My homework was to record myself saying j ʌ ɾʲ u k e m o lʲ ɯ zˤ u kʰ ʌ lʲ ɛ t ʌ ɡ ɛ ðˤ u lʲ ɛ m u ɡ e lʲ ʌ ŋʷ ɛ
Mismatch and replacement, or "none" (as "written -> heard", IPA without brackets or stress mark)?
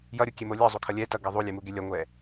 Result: k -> kʲ